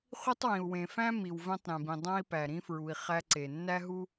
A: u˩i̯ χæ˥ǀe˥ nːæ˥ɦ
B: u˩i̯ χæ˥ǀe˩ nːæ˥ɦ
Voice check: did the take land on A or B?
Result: B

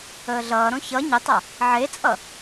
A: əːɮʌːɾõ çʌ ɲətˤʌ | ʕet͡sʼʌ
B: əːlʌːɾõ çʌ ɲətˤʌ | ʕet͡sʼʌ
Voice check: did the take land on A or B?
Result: A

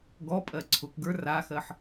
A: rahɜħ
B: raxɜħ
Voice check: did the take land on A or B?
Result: B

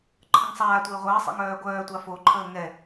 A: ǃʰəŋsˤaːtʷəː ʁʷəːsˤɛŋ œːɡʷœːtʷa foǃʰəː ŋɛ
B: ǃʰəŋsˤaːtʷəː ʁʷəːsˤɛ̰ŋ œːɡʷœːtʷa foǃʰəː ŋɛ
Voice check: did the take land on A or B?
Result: B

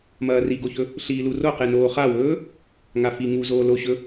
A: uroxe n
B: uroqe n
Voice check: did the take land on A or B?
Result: B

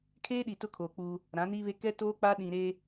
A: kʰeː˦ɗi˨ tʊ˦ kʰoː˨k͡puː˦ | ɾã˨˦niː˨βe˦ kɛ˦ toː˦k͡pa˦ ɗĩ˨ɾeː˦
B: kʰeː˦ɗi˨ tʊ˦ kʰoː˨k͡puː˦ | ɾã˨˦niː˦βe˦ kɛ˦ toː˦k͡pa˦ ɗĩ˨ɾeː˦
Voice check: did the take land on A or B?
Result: B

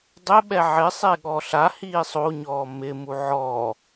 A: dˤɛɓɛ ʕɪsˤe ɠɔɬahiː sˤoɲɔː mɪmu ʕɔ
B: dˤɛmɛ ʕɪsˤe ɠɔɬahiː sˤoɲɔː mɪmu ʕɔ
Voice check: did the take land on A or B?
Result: A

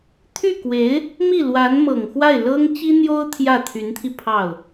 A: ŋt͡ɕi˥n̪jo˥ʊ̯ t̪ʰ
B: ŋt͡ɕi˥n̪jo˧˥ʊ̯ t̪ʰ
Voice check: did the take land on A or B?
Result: A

